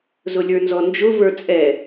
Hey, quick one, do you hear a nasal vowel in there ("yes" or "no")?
no